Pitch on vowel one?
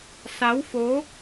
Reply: rising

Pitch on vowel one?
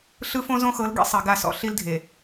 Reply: high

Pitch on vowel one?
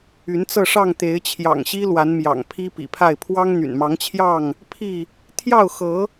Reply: rising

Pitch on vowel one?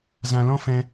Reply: low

